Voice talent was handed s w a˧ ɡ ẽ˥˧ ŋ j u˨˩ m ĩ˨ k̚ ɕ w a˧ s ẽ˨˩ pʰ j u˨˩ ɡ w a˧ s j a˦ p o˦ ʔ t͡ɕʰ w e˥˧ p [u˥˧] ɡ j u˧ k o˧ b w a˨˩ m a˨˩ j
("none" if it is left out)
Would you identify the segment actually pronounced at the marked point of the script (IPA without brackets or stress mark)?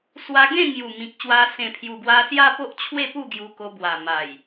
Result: u˥˧